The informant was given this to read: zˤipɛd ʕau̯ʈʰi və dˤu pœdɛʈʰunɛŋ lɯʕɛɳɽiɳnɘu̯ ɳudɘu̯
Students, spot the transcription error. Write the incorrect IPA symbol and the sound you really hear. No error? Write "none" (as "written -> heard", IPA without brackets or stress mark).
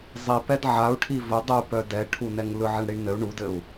none